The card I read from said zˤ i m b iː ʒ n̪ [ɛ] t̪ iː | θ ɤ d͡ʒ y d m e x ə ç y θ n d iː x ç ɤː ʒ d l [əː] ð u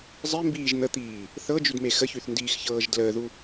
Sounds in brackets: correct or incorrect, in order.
incorrect, correct

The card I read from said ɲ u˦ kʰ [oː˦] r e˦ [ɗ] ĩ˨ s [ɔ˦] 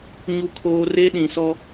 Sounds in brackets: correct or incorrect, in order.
correct, correct, correct

